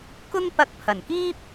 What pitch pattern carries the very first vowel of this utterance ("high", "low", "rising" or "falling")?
high